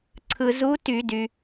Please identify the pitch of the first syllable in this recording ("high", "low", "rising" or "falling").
low